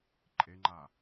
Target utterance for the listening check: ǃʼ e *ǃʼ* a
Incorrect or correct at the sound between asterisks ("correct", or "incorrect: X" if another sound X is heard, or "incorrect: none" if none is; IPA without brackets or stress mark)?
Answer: incorrect: ŋ͡ǃ